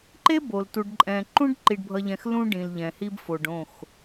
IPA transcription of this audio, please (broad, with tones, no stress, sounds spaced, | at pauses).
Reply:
ǃ e˦ b o˨ l t u˨ ɖ ǃʼ ɛ̃˨ ǃ ũ˦ ɖ ǃ i˨ ɖ bʱ ʌ˨ ʎ ɛ̃˨ x l ũ˦ ɖ ĩ˨ l ʎ ɛ̃˨ h i˦ b f o˨ ɖ õ˦˨ x